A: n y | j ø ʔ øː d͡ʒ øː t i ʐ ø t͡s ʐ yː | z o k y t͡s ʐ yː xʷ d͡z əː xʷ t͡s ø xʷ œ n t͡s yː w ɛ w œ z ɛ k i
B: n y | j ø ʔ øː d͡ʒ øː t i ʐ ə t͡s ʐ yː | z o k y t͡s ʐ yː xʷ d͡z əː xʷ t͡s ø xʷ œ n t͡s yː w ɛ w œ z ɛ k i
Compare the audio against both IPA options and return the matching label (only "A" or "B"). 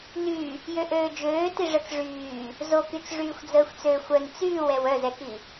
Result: B